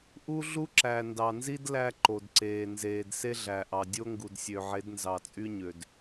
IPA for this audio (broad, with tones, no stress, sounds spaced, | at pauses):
ʔ u˦ ɮ u˦ ǁ æ˨ n d ɑ˨ n z i˦ d l æ˦ ǃ o˨ d ǀ eː˨ n z eː˨ d s e˦ ɮ æ˨ ʔ ɑ˨ dʲ o˦ ŋ ɡ u˨ d sʲ ø˨ ʕ e˨˦ d n z ɑ˨ t͡sʼ y˦ ɲ ø˨ d